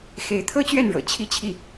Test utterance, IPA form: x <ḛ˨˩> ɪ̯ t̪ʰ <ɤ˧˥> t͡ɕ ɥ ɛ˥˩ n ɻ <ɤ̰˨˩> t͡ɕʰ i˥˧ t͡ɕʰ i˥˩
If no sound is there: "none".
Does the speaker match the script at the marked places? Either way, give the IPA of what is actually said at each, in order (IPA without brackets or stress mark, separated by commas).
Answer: e˧˥, ɤ˥, ɤ̰˨˩